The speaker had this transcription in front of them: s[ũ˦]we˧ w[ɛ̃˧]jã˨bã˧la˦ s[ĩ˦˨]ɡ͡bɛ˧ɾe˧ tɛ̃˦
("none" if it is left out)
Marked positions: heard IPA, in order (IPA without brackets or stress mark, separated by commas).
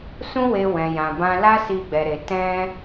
ũ˦, ɛ̃˨, i˦˨